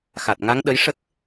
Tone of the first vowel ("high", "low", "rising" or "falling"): low